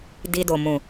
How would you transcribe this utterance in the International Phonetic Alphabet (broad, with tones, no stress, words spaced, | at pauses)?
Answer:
di˧do˨mũ˨